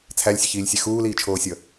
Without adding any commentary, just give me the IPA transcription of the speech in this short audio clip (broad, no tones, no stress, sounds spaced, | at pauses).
t͡sʰ æ lʲ sʲ ɛ ç iː lʲ sʲ ɛ x uː l iː t͡ʃʰ oː sʲ ʌ